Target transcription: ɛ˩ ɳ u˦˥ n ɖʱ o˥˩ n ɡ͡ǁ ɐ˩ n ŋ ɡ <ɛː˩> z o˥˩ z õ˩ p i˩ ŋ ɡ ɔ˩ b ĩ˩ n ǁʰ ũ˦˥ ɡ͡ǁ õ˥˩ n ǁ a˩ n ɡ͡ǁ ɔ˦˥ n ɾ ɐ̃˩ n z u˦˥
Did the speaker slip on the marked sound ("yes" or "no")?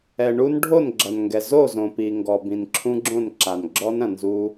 yes